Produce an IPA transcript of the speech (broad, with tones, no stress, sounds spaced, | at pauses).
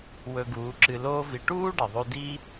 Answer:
w ɵ˧ ɡ uː˨˦ ǁ ɨ˧ l oː˦ v i˧ ʈ uː˦ ɖ ɐ˨ ðˤ ʉ˧ d i˦